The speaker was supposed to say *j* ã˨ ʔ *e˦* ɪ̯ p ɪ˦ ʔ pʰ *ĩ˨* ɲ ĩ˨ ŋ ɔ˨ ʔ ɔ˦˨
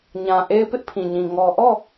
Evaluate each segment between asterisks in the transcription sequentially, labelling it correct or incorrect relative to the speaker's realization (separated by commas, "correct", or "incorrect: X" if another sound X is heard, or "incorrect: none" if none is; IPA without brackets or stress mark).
incorrect: ɲ, correct, correct